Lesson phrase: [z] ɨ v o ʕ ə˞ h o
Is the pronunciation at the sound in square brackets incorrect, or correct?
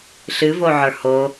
incorrect